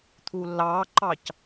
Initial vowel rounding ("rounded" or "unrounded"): rounded